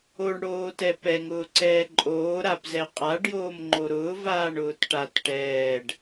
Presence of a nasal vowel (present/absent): absent